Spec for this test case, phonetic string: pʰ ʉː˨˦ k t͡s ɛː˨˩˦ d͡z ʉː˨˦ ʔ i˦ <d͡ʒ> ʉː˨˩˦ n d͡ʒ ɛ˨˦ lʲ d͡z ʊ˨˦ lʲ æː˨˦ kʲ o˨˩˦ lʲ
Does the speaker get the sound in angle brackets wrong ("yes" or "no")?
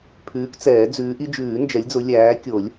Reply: no